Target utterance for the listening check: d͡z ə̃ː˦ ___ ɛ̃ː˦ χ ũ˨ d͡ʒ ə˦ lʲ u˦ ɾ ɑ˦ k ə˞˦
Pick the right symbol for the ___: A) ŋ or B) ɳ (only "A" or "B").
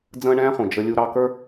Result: B